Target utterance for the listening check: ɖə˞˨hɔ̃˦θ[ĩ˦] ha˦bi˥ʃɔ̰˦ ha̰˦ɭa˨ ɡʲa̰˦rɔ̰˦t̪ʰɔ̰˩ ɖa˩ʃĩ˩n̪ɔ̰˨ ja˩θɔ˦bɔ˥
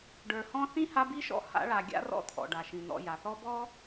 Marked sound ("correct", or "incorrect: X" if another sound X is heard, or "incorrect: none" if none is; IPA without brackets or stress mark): incorrect: ĩ˥